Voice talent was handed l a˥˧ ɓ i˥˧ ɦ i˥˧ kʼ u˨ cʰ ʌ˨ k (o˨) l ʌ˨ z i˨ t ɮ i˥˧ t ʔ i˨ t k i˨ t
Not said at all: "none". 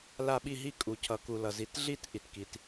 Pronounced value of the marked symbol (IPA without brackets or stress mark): u˨